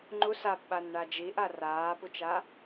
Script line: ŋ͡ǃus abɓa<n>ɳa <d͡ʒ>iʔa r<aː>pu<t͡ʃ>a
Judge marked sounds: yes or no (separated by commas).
yes, yes, yes, yes